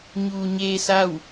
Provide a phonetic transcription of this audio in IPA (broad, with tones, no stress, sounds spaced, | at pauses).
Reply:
ɲ uː˩ ɲ eː˧ s a˥˨ w